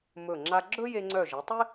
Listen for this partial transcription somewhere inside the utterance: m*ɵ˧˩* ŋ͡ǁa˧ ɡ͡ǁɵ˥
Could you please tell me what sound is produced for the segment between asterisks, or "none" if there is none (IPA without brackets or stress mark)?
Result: ɵ˧˩